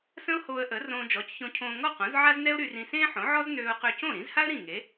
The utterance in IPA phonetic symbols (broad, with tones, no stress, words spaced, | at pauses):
sə̃˥ʊ̯hoː˧ə̯ʔə˩˥ rõː˧d͡ʒɔ˩˥cçõ˧cʰõː˧ ŋɔ˥˩qõ˩˥z ʕa˥znɛ˥ʊ̯ɾy˧rĩ˧ sẽː˥ħõ˩˥ʕɔ˥z nøː˧ʊ̯qø˧cõ˥˩ ɾĩ˩˥zha˥ə̯ ɾĩ˥˩ŋe˩˥